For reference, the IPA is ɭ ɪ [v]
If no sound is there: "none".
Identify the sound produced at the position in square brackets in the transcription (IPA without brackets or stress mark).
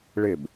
b